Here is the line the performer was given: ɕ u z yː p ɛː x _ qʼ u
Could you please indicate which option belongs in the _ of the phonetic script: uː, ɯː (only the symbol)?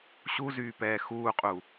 uː